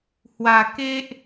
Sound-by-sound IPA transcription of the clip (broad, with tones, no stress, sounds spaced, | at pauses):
h w a˨˩ k e˦ ʔ